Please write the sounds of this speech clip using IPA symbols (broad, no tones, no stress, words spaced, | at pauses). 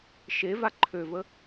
ʃeva ǃʰøvə